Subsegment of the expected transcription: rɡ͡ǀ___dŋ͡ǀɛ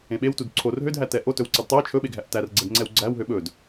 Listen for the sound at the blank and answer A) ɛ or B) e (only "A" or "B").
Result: A